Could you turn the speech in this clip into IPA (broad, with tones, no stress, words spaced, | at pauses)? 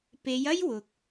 pe˨˧jɐ˥jwʊ˨k̚